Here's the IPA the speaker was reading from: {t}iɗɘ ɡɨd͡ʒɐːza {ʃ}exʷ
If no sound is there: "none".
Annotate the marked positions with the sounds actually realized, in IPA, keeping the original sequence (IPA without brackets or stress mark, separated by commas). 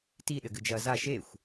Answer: t, ʃ